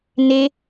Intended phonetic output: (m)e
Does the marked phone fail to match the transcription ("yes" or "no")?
yes